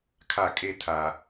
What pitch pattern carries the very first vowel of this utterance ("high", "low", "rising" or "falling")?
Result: falling